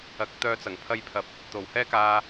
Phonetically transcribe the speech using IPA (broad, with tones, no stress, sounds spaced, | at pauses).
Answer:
ɐ˨˥ k̚ t̪ œː˧ t͡s ɐ˨˩ ŋ pʰ ɐ˧ j pʰ ɐ˨ p̚ | t̪ o˨˩ w h ɛː˥ k aː˧